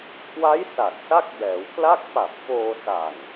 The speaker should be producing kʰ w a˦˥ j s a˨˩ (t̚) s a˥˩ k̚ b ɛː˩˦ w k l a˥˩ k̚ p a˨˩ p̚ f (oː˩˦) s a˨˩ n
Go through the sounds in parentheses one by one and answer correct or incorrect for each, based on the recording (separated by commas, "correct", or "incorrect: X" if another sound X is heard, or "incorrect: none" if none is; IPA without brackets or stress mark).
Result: correct, incorrect: oː˧